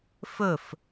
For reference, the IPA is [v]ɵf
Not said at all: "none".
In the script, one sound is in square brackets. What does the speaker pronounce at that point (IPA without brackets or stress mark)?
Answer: f